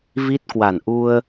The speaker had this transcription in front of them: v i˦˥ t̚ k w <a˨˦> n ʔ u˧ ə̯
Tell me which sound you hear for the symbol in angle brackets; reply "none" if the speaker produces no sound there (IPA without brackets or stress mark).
a˧˩